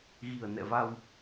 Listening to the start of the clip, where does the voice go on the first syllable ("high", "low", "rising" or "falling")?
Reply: low